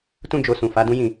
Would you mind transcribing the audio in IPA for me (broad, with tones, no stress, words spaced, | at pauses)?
tũ˦d͡ʒo˧ sũ˨fa˨˦dũ˦jĩ˦˨